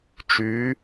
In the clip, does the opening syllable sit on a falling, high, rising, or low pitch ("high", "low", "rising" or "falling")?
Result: rising